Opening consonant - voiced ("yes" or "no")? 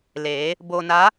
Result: yes